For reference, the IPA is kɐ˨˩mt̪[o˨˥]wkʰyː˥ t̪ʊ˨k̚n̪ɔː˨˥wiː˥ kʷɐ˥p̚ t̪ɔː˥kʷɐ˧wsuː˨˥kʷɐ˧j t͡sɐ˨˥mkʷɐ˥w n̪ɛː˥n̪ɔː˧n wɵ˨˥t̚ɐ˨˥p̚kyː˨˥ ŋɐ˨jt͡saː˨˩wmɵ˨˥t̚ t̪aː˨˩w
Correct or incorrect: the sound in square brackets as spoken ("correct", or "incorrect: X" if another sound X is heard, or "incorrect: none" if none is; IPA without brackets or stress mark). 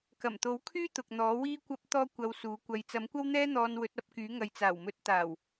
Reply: correct